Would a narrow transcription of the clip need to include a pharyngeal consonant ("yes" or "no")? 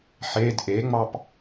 yes